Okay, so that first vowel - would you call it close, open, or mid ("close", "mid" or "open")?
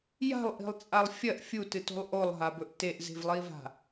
open